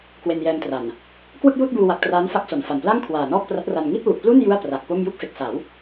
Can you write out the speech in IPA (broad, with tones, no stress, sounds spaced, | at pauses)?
k w e˧ n j ɛː˧ m t r a˨˩ n | k w ɯ˥˩ k̚ j uː˥˩ t̚ b uː˧ w a˨˩ k̚ t r aː˦˥ n f a˦˥ k̚ s o˨˩ n f a˨˩ n p l a˥˩ ŋ kʰ w aː˨˩ n ɔː˥˩ k̚ p r a˦˥ t̚ r a˧ n ŋ i˥˩ t̚ w u˨˩ ʔ p l u˥˩ n j u˥˩ a̯ p r a˨˩ k̚ p o˥˩ m j u˥˩ k̚ f e˨˩ k̚ s a˩˦ w